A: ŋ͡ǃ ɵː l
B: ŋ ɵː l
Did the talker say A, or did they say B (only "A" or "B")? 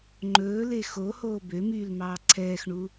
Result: A